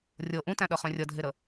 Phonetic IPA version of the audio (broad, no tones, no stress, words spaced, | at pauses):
rʲɤ ʔũtæ̃ɗʌχœ̃ rʲʌdʱeɾə